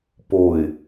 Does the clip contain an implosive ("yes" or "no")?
no